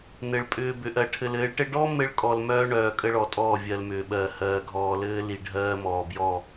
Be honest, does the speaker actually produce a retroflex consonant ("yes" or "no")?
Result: yes